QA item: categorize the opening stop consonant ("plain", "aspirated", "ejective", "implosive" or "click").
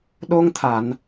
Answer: implosive